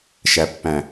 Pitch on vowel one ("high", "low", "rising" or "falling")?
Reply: low